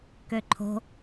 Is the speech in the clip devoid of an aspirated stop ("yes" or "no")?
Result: no